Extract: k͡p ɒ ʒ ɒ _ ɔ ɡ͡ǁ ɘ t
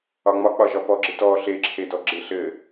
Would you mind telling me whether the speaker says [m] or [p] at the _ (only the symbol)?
p